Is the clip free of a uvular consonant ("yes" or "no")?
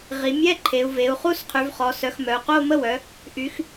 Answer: no